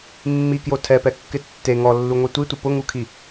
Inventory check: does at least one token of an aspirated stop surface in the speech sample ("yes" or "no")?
yes